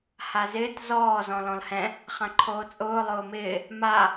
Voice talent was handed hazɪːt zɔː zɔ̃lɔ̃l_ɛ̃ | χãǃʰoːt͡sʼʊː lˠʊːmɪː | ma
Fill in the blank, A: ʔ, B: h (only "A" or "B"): B